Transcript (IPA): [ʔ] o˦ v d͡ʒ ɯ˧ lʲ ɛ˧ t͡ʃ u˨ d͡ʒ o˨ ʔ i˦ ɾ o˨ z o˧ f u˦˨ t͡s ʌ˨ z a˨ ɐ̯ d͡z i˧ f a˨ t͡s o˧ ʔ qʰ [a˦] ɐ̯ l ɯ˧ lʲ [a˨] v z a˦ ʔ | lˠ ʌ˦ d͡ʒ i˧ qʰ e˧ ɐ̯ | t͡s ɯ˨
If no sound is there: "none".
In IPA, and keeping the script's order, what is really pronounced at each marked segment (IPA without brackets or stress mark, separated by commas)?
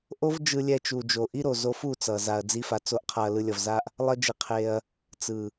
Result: ʔ, a˧, ʌ˨